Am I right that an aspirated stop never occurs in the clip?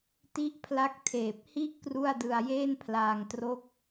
no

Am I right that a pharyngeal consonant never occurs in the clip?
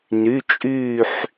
no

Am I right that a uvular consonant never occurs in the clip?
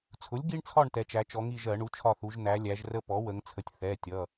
yes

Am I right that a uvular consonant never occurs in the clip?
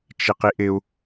no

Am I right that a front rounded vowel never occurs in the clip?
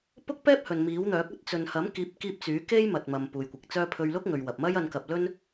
no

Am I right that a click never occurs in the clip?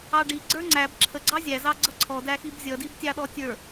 no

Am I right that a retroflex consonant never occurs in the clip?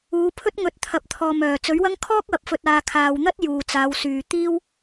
yes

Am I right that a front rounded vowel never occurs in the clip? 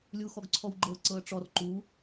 yes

